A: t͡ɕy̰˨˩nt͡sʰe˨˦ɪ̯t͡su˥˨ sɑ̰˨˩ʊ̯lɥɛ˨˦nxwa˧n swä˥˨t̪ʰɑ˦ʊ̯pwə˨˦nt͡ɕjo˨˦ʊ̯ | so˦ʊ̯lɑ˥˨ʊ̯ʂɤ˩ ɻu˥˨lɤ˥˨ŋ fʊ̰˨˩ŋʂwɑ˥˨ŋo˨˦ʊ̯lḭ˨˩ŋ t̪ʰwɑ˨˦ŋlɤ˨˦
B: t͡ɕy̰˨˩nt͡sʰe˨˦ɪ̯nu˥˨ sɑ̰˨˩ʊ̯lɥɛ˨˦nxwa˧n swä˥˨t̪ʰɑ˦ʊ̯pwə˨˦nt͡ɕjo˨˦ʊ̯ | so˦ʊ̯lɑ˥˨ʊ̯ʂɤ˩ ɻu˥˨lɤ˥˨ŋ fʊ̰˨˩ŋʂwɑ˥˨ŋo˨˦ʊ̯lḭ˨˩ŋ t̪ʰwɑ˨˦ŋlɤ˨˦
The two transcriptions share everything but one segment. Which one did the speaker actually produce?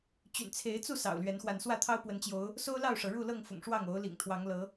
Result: A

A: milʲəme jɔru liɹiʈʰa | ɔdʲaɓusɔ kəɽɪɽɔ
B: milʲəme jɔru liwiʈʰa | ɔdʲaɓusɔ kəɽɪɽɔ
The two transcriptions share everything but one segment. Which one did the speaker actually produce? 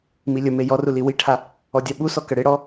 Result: B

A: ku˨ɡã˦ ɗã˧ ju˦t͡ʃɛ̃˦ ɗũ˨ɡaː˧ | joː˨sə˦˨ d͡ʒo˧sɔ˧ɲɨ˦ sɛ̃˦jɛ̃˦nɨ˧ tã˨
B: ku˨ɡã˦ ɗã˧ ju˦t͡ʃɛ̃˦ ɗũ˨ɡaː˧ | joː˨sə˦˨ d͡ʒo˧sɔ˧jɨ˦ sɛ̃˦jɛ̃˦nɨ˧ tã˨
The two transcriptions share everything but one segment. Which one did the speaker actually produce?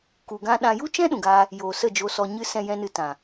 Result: A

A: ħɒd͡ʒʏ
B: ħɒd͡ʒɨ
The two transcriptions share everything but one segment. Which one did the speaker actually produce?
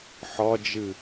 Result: B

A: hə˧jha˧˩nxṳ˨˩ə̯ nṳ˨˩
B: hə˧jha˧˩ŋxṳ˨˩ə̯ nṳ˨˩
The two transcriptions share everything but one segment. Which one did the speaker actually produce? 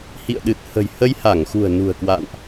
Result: B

